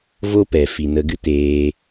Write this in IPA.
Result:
v o˦ p ɛ˨ f i˨ n ə˧ ɡ ɨ˦ t eː˧

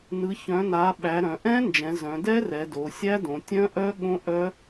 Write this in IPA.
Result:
n ɯ˩˧ ç œ̃˩˧ n a˩˧ ɓ æ˩˧ ɾ œ̃˩˧ ʔ ɛ̃˦˥ n d͡ʒ ɛ̃˩˧ z œ̃˩˧ d ɛ˦˥ r ɛ˩˧ d o˩˧ sʲ æ˦˥ d õ˩˧ tʲ œ̃˦˥ ʔ œ˦˥ ɠ õ˦˥ ʔ œ˦˥

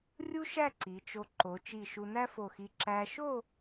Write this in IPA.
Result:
rʲ u˥ ʃ æ˥˧ ǀ i˩˧ t͡ʃ o˧ ǃ o˩˧ t͡ʃ i˧˩ ʃ u˧ n æ˥ f o˧˩ x i˧ ǁ æ˧ ʃ o˥˧

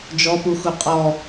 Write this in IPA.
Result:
d͡ʒ ɔ p u x u qʼ ɔ

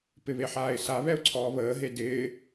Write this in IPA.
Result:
p ɪ β e ħ aː ɪ̯ s a β ɛ ʊ̯ ǀʰ ɔː β əː ɦ e d ɪː

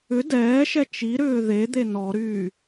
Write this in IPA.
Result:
ʏ d ɛː ʃ ɛ t͡ʃ i ɾ ʏː ð e d̪ e n ɔ ɾ yː

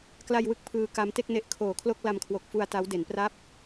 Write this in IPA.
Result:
k l a˧ j w ɯ˦˥ k̚ pʰ ɯː˧ k a˦˥ m t e˥˩ k̚ n e˦˥ ʔ kʰ oː˨˩ kʰ l o˥˩ k̚ l a˧ m kʰ w o˨˩ k̚ f u˧ a̯ t a˦˥ w d e˩˦ n p r a˥˩ p̚

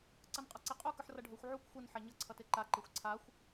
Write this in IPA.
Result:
ǀ ʌ n qʼ ʌ ǀ e qʼ u k ɯ ħ r ʌ ɖʱ o xʷ ʕ u kʷ xʷ ɯ n ħ ɛ ɲ ʌ ǀʰ ʌ t e ǃ a ǃ i xʷ ǀʰ a xʷ

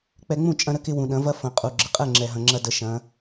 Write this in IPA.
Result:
k͡p ɛ˧ ŋ͡m ũ˥˩ t͡ʃʼ ɐ̃˧ ɾ ə˧ k ɪ˧ w ũ˩ ɗ ɐ̃˩˧ v ɐ˧ f ɐ̃˩ qʼ u˩ ɡ͡ǁ ɪ˩ qʼ ɛ˥˩ ŋ͡ǁ ɛ˩ ɦ ɐ̃˩ ŋ͡ǁ ɐ˧ d ə˩˧ ʃ ɐ̃˩˧

